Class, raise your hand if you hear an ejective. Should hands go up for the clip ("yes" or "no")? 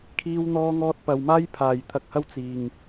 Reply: no